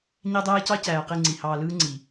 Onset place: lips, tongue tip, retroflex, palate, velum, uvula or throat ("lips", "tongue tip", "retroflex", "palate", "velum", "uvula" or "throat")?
palate